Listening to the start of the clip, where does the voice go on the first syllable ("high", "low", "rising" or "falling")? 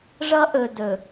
high